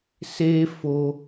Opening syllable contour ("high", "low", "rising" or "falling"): high